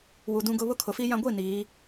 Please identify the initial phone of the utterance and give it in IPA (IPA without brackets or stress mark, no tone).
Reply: w